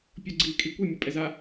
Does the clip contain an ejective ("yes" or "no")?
yes